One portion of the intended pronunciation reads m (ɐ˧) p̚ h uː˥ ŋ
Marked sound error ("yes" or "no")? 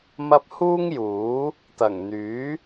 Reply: no